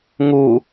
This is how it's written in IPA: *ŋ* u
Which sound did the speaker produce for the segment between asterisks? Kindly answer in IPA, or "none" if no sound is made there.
ŋ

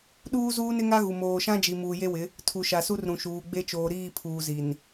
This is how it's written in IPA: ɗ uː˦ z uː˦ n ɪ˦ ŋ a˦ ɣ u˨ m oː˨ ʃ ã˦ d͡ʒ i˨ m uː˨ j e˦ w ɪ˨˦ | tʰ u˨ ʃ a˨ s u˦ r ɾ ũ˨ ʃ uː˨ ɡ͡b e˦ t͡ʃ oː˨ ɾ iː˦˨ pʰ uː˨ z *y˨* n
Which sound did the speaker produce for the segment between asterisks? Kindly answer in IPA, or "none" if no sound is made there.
i˨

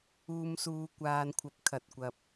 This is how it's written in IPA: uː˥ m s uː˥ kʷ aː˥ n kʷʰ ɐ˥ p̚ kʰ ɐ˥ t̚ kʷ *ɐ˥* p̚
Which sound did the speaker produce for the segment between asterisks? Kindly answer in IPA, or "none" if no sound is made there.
ɐ˥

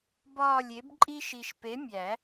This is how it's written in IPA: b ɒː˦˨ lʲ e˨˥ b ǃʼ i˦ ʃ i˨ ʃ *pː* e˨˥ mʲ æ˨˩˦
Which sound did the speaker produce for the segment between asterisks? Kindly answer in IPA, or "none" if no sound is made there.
p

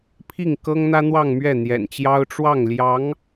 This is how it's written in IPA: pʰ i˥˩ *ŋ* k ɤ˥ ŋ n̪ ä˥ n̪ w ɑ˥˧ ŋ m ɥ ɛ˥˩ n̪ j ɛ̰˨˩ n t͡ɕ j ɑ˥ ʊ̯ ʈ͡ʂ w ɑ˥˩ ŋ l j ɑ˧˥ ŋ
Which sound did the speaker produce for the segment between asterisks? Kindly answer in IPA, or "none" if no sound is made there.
ŋ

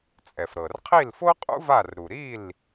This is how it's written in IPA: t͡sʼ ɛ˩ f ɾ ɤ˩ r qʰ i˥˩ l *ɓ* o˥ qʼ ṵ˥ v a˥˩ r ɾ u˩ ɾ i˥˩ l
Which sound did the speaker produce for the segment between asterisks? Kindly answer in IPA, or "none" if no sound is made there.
f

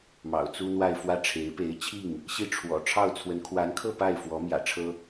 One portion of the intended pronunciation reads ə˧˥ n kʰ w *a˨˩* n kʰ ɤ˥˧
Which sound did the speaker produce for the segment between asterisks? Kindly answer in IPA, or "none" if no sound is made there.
a˧˥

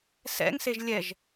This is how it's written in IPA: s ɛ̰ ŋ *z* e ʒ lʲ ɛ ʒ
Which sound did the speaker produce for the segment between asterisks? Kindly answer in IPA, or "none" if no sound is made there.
s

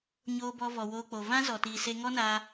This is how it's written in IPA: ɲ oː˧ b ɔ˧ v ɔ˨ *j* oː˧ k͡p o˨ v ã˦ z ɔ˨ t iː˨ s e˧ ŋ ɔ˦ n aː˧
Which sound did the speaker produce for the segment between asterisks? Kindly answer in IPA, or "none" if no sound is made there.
w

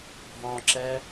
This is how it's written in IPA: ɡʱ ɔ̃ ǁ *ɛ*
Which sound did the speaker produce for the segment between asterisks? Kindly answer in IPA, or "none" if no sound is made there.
ɛ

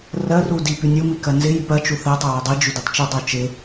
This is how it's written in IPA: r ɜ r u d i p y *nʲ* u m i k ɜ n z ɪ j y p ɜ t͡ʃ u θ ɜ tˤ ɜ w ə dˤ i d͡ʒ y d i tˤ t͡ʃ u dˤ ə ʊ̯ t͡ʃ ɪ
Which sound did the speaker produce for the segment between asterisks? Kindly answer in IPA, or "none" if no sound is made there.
nʲ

